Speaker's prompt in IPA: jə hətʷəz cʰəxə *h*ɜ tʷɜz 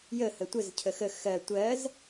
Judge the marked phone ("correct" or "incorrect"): incorrect